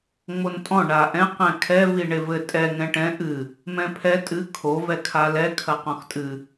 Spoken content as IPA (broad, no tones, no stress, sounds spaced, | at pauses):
ŋ͡m o n tʼ ɔ̃ ɳ a ʔ ɛ̃ q ɛ̃ kʰ ɛ v i ɳ e v ɘ tʼ ɛ ŋ ɛ̃ ʈ ɛ̃ ʔ ɨ | m ɛ̃ pʰ ɛ tʼ ɨ kʰ o v ɛ kʰ a l ɛ kʰ ɐ q ɔ̃ x tʼ ɨ